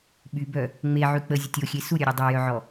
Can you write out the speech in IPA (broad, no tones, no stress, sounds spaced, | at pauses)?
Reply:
ɓ y b œ | ŋ͡m e ʕ y k͡p ə zʲ ə tʲ o xʲ e s u ɾʲ œ ɾʲ œ dˤ œ j œ ʕ ɔ